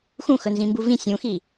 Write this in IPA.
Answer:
x ũ x ɵ n z ĩ m b u v ĩ sʲ ũ x i

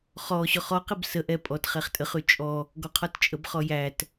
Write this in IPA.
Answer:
χ ɔ ɕ ɔ χ ɔ q ɪ b s ə ʔ ɛ pʼ ɔ t χ ɛ χ tʼ ə χ ʉ t͡ʃʼ ɔ | ɡ ɔ qʰ ɔ t t͡ʃʼ ə b χ ɔ j æ t

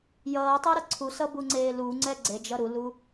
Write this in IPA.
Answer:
j ʌː tˤ ɪː ɾ ʌ ǀʰ u s ʌ b u ŋ͡ǀ eː l u ŋ͡ǀ ɛ ɡ͡ǀ e d͡ʒ ʌ ɾ u l u

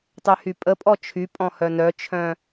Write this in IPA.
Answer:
tˤ ø h y pʼ ə pʼ ɔ t͡ʃʰ y pʼ ɔ̃ h œ n œ t͡ʃʰ œ̃

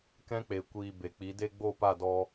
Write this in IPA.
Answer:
k ɛ̃˧ k͡p e˨ kʷ iː˨ b e˨ k͡p i˨˦ d e˦ ɡ͡b o˦˨ p a˦˨ d ɔ˧

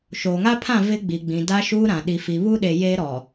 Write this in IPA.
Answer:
ʃ oː˨ ŋ a˦ pʰ ã˦˨ v ɪ˦ ɡ͡b i˨ ɡ͡b ĩ˨ d a˦ ʃ uː˦ ɾ ã˨ ɗ i˨ f i˨ β u˦ ɗ e˨ j eː˦ ɾ ɔ˨

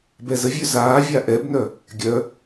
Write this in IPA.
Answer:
b ɛ z ə vʲ ø z aː vʲ a ʔ ɛ b n œ | ɡʲ œ

